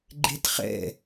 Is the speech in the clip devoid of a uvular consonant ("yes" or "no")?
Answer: no